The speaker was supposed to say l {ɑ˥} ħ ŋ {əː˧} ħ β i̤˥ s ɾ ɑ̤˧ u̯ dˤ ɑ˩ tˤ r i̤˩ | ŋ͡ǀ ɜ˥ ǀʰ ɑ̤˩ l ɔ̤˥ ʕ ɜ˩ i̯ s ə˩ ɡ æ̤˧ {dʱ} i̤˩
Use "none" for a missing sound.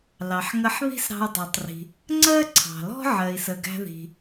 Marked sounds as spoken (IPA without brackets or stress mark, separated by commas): ɑ˩, ə˧, ð